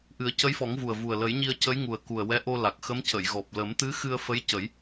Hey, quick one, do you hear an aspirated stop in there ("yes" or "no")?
no